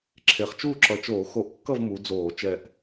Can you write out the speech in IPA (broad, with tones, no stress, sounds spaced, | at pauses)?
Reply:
ǁʰ e˨˩ χ t͡ʃ uː˥˨ ǁ ʌ˨˩ t͡ʃ oː˧˩˧ x o˧˩˧ ʔ kː ʌ˥˨ v m u˨˦ d͡z oː˧˩˧ t͡ʃ ɛ˨˩ ʔ